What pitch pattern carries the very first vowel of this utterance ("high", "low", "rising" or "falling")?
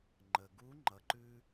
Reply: low